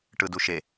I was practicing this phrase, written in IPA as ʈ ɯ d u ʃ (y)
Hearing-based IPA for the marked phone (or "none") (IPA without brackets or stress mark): e